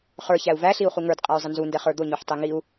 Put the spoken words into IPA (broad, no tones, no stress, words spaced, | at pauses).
χə˞çæu̯ væɬiu̯ χuŋə˞d qʼæy̯zˤənzundɛ χə˞d̪ʊɲuħ tˤiŋiu̯